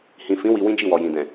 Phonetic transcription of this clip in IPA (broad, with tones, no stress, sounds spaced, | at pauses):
h ĩ˨ f ĩ˨˦ w i˧ w ĩ˦ d͡ʒ i˦˨ w ɔ˨ j ĩ˨ d ɛ̃˨